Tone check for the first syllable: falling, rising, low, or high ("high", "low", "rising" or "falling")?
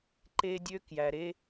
high